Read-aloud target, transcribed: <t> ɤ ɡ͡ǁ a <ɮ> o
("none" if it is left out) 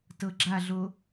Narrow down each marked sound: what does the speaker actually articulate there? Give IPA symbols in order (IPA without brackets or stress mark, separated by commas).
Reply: t, ɮ